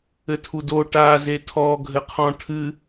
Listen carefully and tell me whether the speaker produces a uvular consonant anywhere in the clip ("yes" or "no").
yes